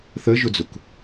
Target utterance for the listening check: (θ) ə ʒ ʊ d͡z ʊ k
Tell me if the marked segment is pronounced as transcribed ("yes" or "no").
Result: yes